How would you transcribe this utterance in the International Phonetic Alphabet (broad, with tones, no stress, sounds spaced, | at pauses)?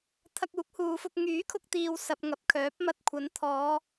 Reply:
t̪ʰ ɐ˧ k̚ uː˨˥ k̚ h uː˨ f ʊ˧ k̚ ŋ yː˨˥ kʰ ʊ˧ k̚ t̪ iː˨ w s ɐ˧ p̚ ŋ ɐ˨˥ p̚ kʰ œː˨˥ p̚ m ɐ˧ t̚ kʷʰ ɐ˨˧ n t̪ʰ ɔː˨˧